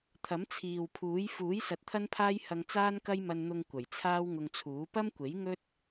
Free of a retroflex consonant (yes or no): yes